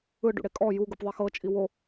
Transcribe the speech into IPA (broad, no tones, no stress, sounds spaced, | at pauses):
ɯ ɖ ṵ ɽ e kʼ ɔ j u ɡ ɯ p ðˤ i x ɤ t͡ʃʼ i w o